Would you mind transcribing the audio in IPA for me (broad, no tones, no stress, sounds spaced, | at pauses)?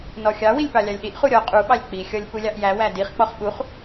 n ɔ xʲ ɑ w i lʲ p ɑ lʲ ɑ lʲ ɗ i ʔ χ u ɾʲ ɔ qʼ u ɓ ɑ lʲ k͡p i xʲ ɔ lʲ p u lʲ ɑ ʔ j æ w æ d i χ k͡p ɔ χ ɓ u χ